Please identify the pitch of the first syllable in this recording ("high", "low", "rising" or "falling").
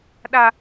high